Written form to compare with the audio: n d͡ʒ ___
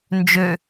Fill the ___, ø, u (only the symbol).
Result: ø